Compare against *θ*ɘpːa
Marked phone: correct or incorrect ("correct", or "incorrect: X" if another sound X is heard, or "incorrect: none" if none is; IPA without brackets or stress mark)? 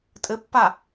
incorrect: tʼ